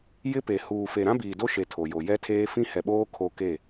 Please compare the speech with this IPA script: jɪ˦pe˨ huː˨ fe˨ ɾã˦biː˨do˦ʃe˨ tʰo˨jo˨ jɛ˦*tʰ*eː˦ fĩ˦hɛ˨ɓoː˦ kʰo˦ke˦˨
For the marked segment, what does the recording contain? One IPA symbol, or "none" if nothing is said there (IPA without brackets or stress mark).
tʰ